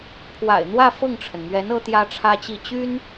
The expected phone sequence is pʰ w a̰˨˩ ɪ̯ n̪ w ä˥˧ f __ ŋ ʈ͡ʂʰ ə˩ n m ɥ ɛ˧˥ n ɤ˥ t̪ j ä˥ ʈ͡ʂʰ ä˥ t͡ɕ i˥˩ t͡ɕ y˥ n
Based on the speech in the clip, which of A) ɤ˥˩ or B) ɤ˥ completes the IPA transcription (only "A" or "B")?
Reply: A